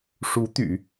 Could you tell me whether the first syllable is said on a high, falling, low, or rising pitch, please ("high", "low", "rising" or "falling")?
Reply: rising